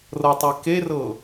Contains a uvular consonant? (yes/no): no